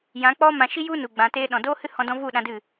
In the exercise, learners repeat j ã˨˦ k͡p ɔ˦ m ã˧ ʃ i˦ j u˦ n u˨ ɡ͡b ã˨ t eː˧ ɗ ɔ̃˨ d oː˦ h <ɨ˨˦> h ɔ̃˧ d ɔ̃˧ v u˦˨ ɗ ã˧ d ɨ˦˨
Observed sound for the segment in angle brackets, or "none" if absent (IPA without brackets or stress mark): ɨ˦